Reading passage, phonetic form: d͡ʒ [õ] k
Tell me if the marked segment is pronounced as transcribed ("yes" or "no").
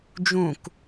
no